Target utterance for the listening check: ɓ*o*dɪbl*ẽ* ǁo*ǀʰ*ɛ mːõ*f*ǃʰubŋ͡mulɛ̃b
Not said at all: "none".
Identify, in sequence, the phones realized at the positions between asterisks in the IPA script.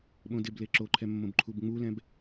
õ, e, ǃʰ, b

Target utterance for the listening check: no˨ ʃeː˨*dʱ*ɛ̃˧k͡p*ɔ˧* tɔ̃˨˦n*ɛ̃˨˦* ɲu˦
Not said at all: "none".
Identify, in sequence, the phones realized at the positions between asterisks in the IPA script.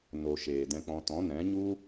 d, ɔ̃˧, ɛ̃˨˦

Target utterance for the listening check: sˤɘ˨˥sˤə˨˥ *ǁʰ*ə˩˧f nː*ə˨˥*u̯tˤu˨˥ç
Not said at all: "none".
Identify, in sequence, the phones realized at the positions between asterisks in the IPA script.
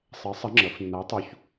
ŋ͡ǁ, ə˨˥

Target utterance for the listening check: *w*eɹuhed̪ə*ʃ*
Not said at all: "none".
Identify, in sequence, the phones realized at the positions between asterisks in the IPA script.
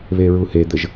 β, ʒ

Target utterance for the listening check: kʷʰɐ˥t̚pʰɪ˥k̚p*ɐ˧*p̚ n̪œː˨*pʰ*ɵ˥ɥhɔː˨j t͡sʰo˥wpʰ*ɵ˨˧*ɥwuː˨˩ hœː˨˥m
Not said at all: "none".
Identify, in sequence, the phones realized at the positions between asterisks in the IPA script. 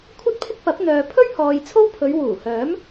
ɐ˨˥, pʰ, ɵ˨˧

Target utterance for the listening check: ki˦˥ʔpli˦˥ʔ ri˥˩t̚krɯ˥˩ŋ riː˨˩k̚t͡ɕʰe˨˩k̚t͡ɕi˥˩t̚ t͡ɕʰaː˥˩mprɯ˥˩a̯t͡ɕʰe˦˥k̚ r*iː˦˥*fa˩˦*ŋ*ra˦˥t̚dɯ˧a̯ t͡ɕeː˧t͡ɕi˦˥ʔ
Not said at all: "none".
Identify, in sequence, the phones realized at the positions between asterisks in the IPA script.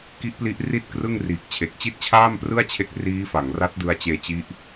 iː˦˥, ŋ

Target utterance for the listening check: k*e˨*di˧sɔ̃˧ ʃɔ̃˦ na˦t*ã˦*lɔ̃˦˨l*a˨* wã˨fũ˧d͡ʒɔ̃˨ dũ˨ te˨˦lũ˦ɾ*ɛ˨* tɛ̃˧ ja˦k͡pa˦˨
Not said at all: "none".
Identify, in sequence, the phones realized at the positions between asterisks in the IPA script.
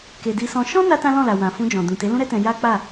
e˨, ã˦, a˨, ɛ˦

